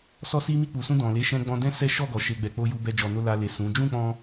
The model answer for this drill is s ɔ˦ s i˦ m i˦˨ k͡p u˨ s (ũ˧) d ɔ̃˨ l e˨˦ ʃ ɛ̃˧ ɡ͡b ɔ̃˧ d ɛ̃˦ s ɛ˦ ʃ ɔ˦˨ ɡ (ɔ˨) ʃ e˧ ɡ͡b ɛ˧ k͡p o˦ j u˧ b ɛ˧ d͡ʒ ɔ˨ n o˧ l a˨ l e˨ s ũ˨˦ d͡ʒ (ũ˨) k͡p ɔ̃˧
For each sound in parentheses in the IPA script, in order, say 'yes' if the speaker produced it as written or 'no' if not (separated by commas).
yes, yes, no